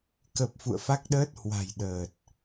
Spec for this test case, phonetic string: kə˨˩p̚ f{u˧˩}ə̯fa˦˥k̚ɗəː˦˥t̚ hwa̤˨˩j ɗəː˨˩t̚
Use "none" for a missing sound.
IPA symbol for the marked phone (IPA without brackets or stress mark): ṵ˧˨